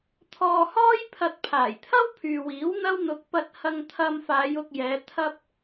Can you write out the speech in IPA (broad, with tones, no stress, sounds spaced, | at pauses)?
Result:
t̪ʰ ɔː˧ h ɔː˥ j pʰ ɐ˧ t̚ pʰ aː˨˩ j t̪ʰ ɐ˥ w pʰ yː˨ w iː˨˥ w n̪ ɐ˥ w n̪ ʊ˧ k̚ p ɐ˧ t̚ h ɐ˧ ŋ t̪ʰ ɐ˧ m f aː˨˧ j ʊ˧ k̚ j ɛː˨˧ t̪ʰ ɐ˧ p̚